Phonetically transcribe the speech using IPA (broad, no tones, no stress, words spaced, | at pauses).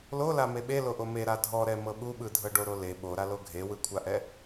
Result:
lola meɓe loʔome ɾadʱɔɾɛmɤ ɓuɓɯdʱɤ ɖoɾole ɓoɾalo ɡʱewɯkʷʰaʔɛ